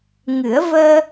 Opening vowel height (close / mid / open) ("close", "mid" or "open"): close